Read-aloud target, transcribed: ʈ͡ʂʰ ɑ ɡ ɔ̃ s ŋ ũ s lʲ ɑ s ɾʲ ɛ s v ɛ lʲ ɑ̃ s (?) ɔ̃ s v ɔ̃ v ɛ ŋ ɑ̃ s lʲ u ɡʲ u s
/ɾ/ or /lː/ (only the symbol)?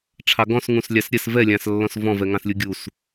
lː